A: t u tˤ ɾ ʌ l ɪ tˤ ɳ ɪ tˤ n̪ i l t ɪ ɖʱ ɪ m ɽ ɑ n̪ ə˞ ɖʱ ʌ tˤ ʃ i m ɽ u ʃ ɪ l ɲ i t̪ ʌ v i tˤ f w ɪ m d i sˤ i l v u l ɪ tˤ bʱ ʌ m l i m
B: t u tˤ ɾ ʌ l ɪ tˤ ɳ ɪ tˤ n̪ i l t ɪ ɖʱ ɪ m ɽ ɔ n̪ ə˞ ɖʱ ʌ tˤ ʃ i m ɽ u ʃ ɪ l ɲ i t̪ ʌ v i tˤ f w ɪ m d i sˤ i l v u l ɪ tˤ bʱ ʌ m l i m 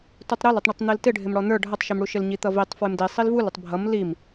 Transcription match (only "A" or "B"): B